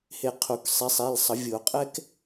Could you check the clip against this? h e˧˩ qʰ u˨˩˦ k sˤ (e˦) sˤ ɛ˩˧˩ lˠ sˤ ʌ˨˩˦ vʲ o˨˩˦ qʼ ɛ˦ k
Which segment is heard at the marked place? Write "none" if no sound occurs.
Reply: e˨˦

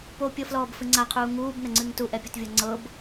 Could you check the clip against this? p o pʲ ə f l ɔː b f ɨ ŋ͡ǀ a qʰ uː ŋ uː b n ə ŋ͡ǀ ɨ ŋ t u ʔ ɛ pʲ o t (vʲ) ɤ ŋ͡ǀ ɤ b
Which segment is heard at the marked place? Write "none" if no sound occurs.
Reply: vʲ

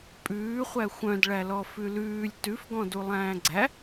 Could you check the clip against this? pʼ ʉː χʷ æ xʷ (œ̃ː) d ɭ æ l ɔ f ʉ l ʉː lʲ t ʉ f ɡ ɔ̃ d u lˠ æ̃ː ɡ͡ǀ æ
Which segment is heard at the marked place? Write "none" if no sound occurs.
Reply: œ̃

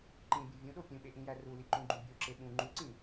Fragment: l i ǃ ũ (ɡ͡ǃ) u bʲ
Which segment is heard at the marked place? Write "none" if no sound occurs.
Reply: ɡ͡ǃ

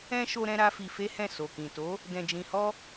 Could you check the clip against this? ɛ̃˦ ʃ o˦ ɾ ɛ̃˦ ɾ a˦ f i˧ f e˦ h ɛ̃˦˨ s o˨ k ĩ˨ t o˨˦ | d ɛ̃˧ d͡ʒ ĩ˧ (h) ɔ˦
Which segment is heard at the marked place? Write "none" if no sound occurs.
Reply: h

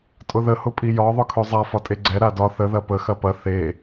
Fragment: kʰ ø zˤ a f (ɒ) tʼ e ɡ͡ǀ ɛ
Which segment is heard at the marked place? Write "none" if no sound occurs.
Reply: ɒ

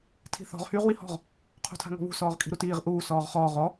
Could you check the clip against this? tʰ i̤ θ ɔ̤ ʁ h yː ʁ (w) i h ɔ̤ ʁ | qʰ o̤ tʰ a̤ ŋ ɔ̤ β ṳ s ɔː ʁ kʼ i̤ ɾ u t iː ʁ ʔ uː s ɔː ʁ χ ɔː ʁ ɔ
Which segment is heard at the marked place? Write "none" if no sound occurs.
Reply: w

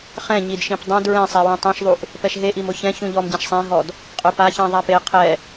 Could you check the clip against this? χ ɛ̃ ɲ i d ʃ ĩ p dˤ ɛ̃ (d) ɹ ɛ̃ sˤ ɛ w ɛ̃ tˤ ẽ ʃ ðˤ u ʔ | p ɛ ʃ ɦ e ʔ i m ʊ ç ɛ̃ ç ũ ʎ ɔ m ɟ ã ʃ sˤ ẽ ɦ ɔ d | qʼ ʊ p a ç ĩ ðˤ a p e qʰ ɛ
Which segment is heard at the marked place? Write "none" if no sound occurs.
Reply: d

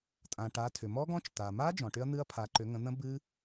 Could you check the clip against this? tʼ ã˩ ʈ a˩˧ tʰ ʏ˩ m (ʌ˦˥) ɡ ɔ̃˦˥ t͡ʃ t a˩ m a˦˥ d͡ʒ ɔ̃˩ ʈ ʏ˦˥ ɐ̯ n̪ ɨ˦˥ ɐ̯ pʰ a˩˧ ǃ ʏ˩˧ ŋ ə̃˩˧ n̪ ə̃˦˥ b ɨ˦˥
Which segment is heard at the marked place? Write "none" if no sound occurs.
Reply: ɔ˦˥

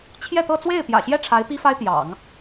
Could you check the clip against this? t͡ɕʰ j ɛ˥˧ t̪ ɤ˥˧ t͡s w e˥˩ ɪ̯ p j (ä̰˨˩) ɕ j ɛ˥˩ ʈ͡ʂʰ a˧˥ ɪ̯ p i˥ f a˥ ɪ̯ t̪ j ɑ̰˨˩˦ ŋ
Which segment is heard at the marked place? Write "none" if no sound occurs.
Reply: ä̰˨˩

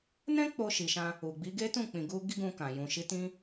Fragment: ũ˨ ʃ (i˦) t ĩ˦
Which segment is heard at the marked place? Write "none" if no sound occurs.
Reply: i˨˦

